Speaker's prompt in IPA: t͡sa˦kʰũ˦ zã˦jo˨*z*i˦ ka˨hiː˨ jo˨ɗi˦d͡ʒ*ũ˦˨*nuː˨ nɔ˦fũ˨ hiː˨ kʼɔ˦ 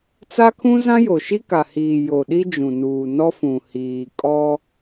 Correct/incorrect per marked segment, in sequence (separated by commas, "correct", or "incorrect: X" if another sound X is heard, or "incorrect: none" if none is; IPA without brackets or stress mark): incorrect: ʃ, incorrect: ũ˨